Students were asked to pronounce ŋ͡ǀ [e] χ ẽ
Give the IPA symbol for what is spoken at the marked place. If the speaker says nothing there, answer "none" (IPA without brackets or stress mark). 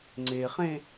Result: e